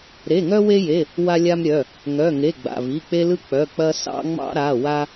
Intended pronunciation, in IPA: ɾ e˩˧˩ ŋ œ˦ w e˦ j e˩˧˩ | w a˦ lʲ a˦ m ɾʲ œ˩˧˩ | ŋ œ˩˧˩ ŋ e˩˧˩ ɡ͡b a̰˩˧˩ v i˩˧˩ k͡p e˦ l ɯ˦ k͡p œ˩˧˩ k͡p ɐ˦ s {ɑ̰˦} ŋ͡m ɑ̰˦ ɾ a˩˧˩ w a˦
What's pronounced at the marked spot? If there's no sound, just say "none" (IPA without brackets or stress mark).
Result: ɑ̰˦